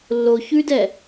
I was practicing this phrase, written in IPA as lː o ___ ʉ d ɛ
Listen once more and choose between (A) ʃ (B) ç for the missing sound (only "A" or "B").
B